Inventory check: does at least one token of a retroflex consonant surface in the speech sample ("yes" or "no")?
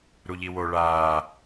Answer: yes